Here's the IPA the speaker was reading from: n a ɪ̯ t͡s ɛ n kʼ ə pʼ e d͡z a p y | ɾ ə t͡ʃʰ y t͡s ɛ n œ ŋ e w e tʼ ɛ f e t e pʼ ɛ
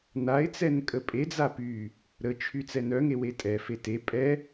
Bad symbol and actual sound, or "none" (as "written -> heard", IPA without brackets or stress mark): none